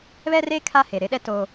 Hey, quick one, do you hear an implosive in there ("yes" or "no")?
yes